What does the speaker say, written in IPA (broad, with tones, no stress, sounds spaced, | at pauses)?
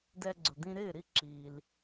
d ɛ˧ ɡ͡ǀ ʊ˩ d̪ ĩ˧ ɾ ɪː˥˩ ɾ i˥˩ ǁ iː˩ l